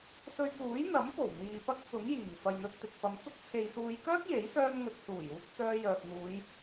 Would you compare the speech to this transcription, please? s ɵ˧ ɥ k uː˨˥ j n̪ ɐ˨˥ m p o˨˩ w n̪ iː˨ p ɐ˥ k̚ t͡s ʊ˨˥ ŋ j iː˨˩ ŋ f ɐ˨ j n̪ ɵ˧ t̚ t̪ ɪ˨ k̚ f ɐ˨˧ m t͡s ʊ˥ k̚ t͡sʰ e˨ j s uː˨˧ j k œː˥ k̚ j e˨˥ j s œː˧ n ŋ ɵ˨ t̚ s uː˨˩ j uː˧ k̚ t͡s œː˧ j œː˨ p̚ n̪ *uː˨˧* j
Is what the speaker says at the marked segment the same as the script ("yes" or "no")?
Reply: yes